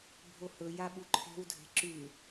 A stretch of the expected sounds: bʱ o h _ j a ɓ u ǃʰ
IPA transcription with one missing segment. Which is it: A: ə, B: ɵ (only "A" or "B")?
B